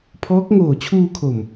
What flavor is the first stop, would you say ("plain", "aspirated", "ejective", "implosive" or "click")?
aspirated